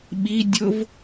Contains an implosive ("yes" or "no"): yes